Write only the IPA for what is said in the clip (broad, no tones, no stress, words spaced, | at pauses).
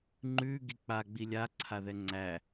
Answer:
ŋ͡ǃʉ ɡik͡pa ɡ͡bilʲaǀʰaðɛ ŋ͡ǀæ